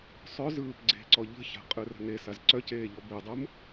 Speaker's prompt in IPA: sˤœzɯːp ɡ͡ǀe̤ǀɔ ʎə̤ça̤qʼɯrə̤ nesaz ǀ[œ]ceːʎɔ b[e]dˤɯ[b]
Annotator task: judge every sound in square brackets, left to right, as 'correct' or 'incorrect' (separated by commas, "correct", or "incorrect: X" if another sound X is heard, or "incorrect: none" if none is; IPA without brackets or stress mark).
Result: correct, correct, incorrect: m